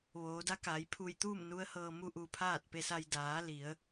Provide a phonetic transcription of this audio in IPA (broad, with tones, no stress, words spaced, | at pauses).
ʋoː˩˧ da˧˥kaː˩˧j pʰu˧˩jt̪uː˥˨m nu˧˥ə̯hɤː˧mu˥˨ ʔu˧pʰaː˥˨t̚ pe˧sa˧j daː˩˧ li˩˧ə̯